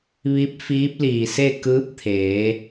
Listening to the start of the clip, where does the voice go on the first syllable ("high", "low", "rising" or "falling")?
rising